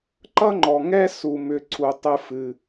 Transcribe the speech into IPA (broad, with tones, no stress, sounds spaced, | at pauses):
ǃ ʌ˥ ŋ͡ǃ ɔ˩ ŋ ɛ˥ s u˩ m ʏ˨ ǀʰ u˩ tˤ ɨ˨ f ɨ˩